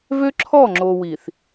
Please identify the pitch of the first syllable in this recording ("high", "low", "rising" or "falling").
high